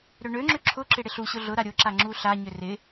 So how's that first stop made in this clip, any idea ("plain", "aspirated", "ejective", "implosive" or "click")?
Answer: click